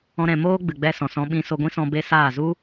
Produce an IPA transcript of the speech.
ɔ̃˧ ɾ ɛ̃˨ m oː˦ ɡ͡b ɨ˨ ɡ͡b ɛ˧ s ɔ̃˨ s ɔ̃˧ ɓ ĩ˧ s o˧ ɡʷ ĩ˦ s ɔ̃˧ b e˦ s aː˦˨ z u˦

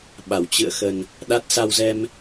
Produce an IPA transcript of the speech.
ɓ a˧˩ w t͡ɕ ɨ̰˧˨ ə̯ x ə˨˩ n | ɗ a˦˥ t̚ s a˧ w z ɛ˧ m

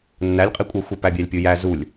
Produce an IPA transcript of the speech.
nː æ lʲ qʼ i kʷʼ ə˞ xʷ i p æ bʲ æ lʲ pʲ u j æ z u lʲ

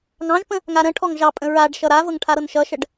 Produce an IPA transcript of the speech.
ŋ ɑ̃ ʒ p ə̃ | ŋ a ɾ ə̃ ʈʰ ɔ ŋ ʒ ɑ pʼ ə̃ ɹ a ɖ ʃ ʌ ɾ a v ɤ ŋ ʈʰ a ɾ ɤ n ʃ ʌ ʃ ə ɖ

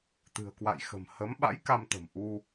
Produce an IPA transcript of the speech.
t̪ ɨ̤˨˩ ə̯ k w a̰˧˨ j x ə̤˨˩ m h ə˨˦ m ɓ a̰˧˥ j k a˧ m t̪ ə̤˨˩ m ʔ u˧

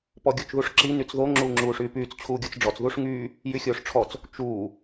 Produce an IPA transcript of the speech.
p ɔ ɡʲ o t͡ʃ ð u ʂ ǁ i n y t͡s ð o ŋ͡ǁ uː ŋ͡ǁ uː ʂ yː p yː t͡s t͡ɕʰ uː ɡʲ o t͡s ɖ͡ʐ ɔ t͡s ð u ʂ ŋ yː | j y xʲ oː ʂ ʈ͡ʂʰ ɔ t͡s | t͡ʃ uː

